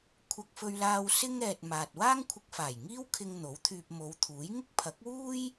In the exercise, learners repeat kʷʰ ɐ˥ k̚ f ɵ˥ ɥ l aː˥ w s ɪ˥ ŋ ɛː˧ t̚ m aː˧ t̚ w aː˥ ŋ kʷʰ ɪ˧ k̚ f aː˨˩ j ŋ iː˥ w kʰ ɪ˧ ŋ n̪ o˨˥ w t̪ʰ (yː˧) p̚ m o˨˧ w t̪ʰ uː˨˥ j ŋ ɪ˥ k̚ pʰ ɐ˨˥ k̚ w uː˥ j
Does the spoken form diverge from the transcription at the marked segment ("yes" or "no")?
no